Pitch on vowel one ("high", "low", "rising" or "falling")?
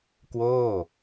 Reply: falling